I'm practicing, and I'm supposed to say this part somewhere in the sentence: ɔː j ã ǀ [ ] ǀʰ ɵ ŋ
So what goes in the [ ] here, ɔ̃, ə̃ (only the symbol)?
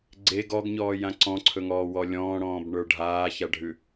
ɔ̃